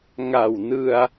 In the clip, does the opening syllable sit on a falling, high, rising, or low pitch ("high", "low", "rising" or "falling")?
low